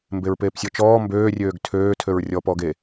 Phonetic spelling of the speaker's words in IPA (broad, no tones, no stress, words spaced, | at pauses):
mbeɹpeːpsʲɔt͡ʃɔː mbøː rʲøːɡtʰøː tʰøɹrʲɔːpɔːɡe